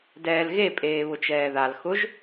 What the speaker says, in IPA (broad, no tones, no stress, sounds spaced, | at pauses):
d ɛː l ɣ e pʼ eː β ʊ t͡ʃ ɛː ð a l x ʊ ʒ